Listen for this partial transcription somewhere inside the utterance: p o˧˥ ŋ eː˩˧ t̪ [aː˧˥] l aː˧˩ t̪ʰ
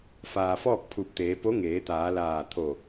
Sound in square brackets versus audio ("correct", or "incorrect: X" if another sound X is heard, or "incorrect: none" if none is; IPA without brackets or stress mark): incorrect: aː˩˧